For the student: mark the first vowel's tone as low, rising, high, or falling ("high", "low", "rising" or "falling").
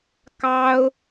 high